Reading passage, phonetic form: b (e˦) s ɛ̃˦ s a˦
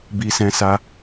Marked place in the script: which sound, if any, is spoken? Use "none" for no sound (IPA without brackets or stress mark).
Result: i˦